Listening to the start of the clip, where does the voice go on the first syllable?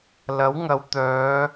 rising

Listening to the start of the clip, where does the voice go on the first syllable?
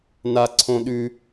high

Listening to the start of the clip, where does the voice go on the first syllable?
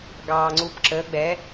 low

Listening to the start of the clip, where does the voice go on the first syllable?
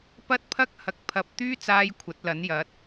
high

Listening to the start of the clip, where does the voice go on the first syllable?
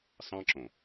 high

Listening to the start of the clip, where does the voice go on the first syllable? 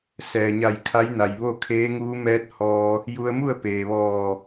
low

